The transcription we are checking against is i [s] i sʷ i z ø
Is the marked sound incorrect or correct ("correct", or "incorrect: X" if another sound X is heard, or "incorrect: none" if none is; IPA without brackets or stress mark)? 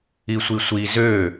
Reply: incorrect: sʷ